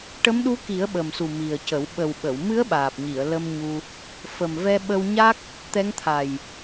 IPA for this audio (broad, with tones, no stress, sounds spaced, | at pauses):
ʈ ə˧˥ m ɗ u˧˥ k i˨˩˦ ə̯ ɓ ə˨˩ m s u˨˩ m i˨˩ ə̯ c ə˨˩˦ w ɓ ə˨˩ w ɓ ə˨˩˨ w m ɨ˧˥ ə̯ ɓ aː˨˩ p̚ ɲ i˨˩˨ ə̯ l ə˧ m ɲ u˧ | f ə˨˩ m v ɛ˧ ɓ ə˧ w ɲ a˦˥ k̚ | t̪ ɛ˧˥ ŋ t̪ʰ a˨˩ j